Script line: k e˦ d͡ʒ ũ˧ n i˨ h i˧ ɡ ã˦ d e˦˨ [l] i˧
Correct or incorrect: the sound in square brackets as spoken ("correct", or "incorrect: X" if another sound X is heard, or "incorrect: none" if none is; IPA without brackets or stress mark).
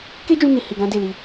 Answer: correct